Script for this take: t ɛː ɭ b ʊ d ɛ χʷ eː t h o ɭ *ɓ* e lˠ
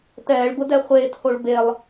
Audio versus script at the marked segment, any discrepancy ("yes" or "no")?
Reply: yes